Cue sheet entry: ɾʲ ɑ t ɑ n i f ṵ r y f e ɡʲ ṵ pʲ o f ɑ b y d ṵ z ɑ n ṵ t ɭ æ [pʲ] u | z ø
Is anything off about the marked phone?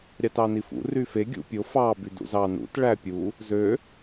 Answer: no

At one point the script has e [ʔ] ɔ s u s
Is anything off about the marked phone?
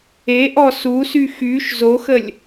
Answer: no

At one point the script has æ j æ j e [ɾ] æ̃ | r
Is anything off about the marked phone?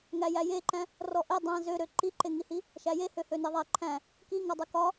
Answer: yes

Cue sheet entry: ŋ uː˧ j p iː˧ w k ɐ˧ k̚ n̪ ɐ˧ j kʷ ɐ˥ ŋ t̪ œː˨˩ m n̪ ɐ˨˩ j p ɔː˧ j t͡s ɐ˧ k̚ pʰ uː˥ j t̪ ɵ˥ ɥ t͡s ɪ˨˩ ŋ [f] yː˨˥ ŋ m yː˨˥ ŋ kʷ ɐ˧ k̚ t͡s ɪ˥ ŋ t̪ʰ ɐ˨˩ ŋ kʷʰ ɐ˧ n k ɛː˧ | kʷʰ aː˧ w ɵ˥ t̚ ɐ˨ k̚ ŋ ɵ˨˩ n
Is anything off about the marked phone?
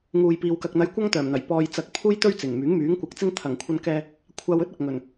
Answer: yes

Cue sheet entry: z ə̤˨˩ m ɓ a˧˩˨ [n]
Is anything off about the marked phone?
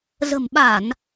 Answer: no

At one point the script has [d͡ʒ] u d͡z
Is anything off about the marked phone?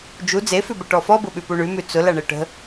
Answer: no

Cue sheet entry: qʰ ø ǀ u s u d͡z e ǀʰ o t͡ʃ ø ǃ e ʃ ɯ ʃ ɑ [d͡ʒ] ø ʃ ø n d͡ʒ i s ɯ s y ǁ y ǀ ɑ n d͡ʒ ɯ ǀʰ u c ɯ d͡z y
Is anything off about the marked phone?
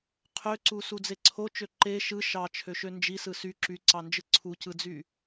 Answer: yes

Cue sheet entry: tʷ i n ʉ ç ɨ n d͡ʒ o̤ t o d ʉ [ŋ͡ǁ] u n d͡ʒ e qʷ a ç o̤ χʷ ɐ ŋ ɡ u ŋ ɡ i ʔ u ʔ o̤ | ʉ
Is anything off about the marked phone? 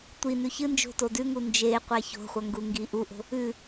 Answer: yes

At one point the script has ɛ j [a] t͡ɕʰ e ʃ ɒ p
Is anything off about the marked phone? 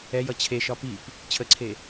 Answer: yes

